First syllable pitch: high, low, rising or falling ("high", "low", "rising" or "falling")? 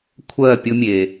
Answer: falling